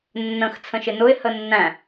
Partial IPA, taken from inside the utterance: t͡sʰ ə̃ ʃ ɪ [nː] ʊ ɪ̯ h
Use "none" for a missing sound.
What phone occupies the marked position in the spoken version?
n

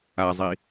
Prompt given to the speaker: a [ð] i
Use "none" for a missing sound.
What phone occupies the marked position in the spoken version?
zˤ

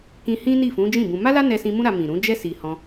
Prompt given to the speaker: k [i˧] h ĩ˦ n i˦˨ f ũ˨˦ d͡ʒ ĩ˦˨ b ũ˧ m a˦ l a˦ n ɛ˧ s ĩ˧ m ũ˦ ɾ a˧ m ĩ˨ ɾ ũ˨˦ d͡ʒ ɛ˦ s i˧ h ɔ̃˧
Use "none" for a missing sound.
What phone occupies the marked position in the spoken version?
ĩ˧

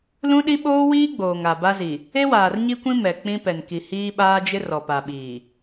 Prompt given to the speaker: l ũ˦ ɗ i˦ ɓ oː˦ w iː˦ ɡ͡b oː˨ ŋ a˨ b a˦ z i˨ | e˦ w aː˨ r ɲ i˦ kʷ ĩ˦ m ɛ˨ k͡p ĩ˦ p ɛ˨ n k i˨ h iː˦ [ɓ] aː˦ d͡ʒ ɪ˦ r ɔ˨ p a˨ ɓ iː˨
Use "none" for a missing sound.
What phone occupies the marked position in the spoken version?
ɓ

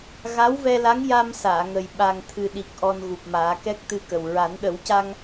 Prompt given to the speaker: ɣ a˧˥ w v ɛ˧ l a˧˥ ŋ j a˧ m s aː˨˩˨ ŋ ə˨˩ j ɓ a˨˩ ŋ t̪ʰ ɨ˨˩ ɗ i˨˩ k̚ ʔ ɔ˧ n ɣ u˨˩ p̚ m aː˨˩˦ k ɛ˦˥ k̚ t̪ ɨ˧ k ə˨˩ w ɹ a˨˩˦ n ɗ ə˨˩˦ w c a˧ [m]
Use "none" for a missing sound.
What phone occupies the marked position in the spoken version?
ŋ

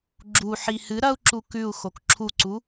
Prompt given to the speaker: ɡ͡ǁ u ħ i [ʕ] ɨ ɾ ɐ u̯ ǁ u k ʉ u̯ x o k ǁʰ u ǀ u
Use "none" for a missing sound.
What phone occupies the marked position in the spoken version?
h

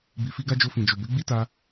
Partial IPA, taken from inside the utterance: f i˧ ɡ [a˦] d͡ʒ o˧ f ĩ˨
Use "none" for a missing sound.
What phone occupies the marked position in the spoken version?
a˦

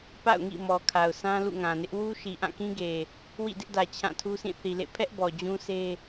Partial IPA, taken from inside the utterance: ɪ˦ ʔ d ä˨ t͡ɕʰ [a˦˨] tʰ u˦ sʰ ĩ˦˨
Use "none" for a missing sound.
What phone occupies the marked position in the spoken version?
ã˦˨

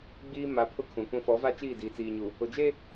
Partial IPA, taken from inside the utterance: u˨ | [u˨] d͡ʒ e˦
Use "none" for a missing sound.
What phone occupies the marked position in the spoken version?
ʊ˨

